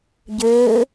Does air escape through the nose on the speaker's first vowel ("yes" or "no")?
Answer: no